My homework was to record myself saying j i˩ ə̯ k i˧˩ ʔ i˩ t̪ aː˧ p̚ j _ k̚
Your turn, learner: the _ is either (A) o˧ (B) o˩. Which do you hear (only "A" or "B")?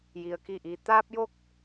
A